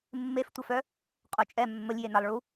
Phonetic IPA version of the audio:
mː e f tʷ ə f œ | qʼ o t͡ʃʼ ɛ mː ə lʲ j e n a lˠ ɭ u

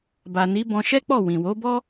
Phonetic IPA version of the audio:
b a˨ n i˨˦ b ɔ̃˧ ʃ ɛ˦ k͡p ɔ˦˨ w ĩ˨ w o˨˦ b ɔ˦

